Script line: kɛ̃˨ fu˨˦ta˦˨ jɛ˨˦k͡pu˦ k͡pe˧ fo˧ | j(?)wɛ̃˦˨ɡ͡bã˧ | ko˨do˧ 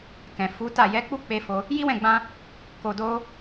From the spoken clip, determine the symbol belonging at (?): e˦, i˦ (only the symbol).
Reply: i˦